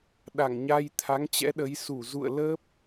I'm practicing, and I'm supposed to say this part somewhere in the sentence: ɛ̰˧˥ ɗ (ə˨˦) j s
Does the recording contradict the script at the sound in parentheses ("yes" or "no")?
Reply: no